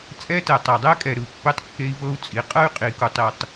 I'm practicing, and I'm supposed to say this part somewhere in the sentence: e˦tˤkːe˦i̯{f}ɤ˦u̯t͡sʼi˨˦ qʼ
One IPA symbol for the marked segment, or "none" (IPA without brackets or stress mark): v